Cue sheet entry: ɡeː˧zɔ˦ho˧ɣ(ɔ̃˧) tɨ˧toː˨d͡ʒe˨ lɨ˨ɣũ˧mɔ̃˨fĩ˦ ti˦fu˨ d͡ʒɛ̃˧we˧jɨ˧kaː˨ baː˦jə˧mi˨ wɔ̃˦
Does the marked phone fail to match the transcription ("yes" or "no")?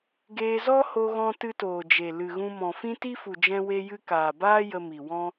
no